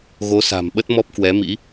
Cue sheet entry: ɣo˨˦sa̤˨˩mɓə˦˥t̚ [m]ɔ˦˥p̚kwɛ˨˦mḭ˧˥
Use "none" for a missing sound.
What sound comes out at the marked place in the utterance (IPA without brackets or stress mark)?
m